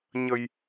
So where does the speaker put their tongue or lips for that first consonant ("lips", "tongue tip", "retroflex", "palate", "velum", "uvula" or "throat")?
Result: palate